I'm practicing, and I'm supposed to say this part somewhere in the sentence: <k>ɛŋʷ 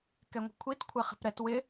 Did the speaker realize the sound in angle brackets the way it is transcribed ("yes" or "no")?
yes